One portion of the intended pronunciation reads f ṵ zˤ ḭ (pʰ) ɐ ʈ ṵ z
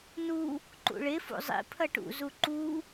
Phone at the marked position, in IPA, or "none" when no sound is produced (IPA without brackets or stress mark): pʰ